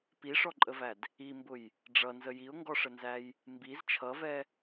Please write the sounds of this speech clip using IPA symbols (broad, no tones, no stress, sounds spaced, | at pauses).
p i ʂ ɔ ǃʼ ə v æ d | i m b ʊ j | ɖ͡ʐ ʌ n z ə j i ʊ̯ ŋ ɡ ɔ ʂ ə n z æ j | m b i z t͡ʃʰ ʌ v ɛ